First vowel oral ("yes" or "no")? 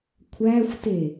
yes